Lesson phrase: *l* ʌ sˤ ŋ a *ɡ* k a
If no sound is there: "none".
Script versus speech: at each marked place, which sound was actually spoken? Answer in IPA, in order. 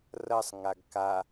r, ɡ

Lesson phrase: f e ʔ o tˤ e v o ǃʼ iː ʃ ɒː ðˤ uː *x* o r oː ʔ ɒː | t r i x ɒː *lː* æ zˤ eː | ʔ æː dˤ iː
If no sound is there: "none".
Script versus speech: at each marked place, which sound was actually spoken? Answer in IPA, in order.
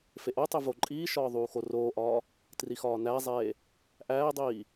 x, n

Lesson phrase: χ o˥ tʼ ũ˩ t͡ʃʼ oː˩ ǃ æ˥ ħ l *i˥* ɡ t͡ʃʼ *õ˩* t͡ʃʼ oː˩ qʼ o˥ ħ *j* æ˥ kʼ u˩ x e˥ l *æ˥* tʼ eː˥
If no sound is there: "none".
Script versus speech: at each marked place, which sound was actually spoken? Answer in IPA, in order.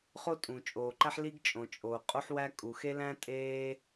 i˥, õ˩, w, æ̃˥

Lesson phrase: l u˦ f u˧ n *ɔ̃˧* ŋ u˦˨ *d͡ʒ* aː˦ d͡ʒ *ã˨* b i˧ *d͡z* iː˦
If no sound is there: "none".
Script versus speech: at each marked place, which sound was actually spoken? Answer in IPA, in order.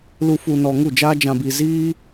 ɔ˧, d͡ʒ, ã˧, z

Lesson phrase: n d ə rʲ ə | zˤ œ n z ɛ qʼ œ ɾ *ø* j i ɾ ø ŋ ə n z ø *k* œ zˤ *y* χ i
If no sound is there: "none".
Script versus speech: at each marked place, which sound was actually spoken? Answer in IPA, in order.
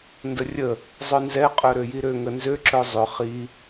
ø, ǁ, ʏ

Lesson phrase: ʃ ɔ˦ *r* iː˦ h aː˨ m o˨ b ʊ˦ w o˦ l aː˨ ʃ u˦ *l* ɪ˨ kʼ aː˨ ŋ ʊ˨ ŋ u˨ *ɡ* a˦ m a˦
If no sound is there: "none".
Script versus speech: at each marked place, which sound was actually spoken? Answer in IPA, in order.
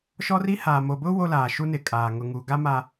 r, n, ɡ

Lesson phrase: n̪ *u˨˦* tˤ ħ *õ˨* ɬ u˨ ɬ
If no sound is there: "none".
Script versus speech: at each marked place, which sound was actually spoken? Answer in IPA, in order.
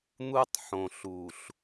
u˦, õ˨

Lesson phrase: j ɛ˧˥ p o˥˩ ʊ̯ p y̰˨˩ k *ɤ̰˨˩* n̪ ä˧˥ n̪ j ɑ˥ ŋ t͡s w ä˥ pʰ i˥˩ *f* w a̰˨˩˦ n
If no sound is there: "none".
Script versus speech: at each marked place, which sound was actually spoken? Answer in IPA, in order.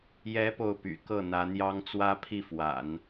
ɤ˥˩, f

